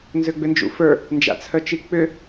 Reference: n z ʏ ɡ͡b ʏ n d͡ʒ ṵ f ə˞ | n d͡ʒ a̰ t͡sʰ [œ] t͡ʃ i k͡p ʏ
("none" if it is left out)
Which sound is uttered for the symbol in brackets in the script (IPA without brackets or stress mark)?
œ